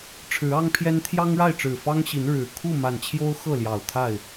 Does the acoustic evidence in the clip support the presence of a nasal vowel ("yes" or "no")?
no